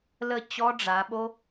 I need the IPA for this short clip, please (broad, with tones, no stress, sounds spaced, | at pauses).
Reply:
l ə˥˨ t͡ɕ ɔ˦˥ ɖ͡ʐ a˩˧ ɓ o˦˥